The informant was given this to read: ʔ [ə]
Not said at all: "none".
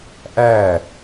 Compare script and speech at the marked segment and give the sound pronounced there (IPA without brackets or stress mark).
æ